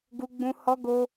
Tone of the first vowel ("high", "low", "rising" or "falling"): high